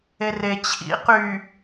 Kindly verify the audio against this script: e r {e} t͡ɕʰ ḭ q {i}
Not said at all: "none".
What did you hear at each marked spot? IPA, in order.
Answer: e, y

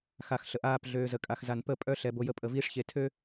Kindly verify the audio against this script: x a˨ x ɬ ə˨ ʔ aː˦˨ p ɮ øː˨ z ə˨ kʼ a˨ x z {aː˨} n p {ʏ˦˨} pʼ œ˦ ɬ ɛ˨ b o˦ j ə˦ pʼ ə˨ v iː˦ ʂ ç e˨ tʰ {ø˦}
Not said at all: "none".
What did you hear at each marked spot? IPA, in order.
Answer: a˨, ə˦˨, ø˦

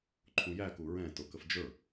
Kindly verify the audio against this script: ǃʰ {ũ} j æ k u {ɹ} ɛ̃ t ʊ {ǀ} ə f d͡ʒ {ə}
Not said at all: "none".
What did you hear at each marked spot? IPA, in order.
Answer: ũ, ɹ, k, ə˞

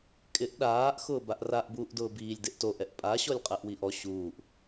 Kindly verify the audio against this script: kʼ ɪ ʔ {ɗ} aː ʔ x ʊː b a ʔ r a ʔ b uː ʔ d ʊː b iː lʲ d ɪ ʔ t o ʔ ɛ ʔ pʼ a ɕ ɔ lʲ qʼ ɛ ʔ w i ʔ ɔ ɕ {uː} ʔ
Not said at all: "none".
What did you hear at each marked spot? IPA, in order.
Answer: ɗ, uː

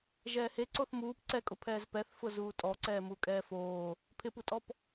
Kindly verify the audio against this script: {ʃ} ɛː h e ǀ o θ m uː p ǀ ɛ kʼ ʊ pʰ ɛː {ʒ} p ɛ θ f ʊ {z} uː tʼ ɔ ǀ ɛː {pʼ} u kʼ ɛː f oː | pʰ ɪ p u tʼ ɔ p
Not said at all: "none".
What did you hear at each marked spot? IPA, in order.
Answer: ʒ, z, z, m

